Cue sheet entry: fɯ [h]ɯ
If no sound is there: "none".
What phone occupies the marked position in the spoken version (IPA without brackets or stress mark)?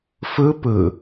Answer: p